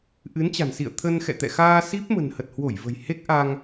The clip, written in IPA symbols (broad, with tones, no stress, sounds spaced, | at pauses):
ʔ ɨ˨˦ n t͡ɕ a̤˨˩ n s ḭ˧˨ ə̯ t̪ʰ ə˧ n x ɛ̰˧˨ t̪ ɛ̰˧˨ x aː˧ s i˦˥ p̚ m ə̤˨˩ n h ə˨˩ t̚ h w o˧˩ j v ə̤˨˩ j h e˦˥ k̚ ʔ a˧ ŋ